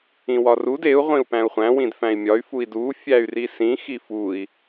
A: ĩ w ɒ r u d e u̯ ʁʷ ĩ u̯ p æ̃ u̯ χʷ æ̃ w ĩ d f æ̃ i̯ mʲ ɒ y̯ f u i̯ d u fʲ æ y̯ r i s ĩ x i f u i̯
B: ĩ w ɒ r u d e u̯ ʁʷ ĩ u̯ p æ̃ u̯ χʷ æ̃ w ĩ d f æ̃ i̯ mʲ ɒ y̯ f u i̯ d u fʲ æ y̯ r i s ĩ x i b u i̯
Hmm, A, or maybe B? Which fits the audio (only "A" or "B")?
A